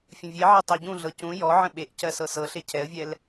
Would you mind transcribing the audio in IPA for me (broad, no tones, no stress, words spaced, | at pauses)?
fʲə̃vʲeʕɛ tˤɜɟũɮɤ cũ jɔ ʕə̃ɓeʔcɜ sɤsɤɬe cʰɛə̯vʲɛl